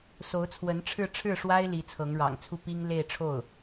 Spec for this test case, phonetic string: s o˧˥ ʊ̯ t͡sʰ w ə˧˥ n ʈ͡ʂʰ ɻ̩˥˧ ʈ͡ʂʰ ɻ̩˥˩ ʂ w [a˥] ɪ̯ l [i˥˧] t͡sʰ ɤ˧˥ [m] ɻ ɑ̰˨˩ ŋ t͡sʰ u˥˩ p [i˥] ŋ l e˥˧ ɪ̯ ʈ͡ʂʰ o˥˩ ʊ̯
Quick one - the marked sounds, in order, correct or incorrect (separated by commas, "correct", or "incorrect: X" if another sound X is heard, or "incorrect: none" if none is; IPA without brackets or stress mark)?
correct, incorrect: i˧˥, incorrect: ŋ, correct